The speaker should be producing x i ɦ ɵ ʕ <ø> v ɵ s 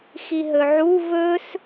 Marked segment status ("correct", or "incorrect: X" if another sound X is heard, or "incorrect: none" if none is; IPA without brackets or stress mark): incorrect: u